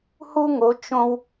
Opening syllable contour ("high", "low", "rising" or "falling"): high